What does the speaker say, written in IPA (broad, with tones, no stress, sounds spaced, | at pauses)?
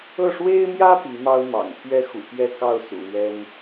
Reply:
ɤ˥˩ ʂ w e˥ ɪ̯ m j ä˥ p i˧˥ m ɑ˥ ʊ̯ m ɑ̰˨˩ ŋ pʰ ɥ ɛ˥ x ṵ˨˩ p j ɛ˥˧ k ɑ˥˩ ʊ̯ s ṵ˨˩ l ɥ ɛ˥ n